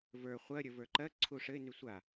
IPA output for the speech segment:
və˞ χʷɜ ɾʲə˞və˞ǃɜ ǀʰuʂɘɪ̯ nysʷa

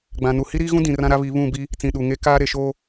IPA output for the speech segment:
ɡ͡bã˨nu˨ hi˦ɾiː˦ɣũ˦dĩ˨ rã˦ɾa˦βi˨˦ βũ˦˨bi˦ | t͡sĩ˦˨ ɗu˨ŋe˦ kaː˦ ɾe˨ʃoː˦

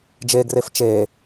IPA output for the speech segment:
d͡ʒeɡref t͡ʃe

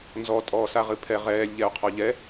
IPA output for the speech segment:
nzɔ tʼɔːsaʁɨpʰɛ ʁɛːlʲʎɛo̯qʰɔ ʎɛ

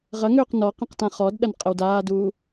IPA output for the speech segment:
ʁɐŋøːq nɔ qĩqtãχɔdɗɐn qʼəwdaːduː

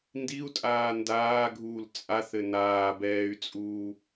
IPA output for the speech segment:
ndiu̯tʼaː ndaːɡʱuːl t͡sʼaθɘ naːbɛːy̯t͡sʼuː

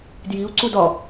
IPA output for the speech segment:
djiu̯ǀud ɒ

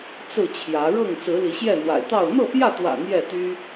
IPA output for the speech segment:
t͡sɹ̩˥˨t͡ɕʰjä˨˦ ɻɤ˥˨ŋ t͡sɹ̩˨˦li˨˦ɕjɛ˥˨n̪wa̰˨˩ɪ̯ t̪ɑ˥˨ʊ̯ n̪ɤ˥˨pjä˥˨t̪wä̰˨˩ n̪jɛ˥˨t̪y˦

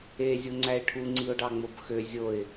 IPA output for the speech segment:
e zʲuŋ͡ǀæɪ̯ʈʰu ŋ͡ǀiʊ̯ɖɑŋ͡mobxø zʲoɪ̯

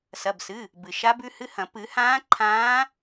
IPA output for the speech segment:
sɐ˩˧˩bsɨ˩˧˩ | bɨ˩ ʃa˧˥bʉ˧˥hɨ˧˥hɐ̃˨˩˦ pɨ˨˩˦hãː˧˥ ǃʰãː˧˥

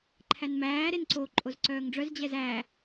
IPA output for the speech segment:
ǃʰænmæː ɾenǀo ǃʼozǀœːŋɖ͡ʐœz d͡ʑɛzæ

